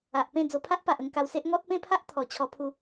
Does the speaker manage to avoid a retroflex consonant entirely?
yes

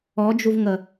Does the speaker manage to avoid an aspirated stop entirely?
yes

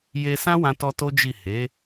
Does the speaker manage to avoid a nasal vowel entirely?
no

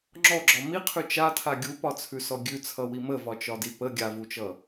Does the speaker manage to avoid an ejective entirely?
yes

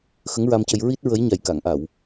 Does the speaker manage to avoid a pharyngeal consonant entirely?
yes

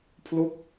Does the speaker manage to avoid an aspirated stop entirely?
no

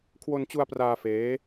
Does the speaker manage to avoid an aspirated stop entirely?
no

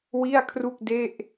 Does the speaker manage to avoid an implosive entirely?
yes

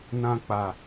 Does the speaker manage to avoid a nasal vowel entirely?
no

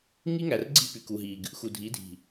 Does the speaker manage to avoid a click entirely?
no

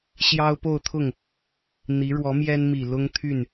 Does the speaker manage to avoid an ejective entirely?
yes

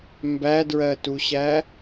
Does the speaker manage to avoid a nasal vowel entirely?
yes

